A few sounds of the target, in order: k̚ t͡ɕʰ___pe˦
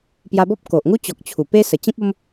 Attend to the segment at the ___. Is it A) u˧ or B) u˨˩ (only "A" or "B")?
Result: B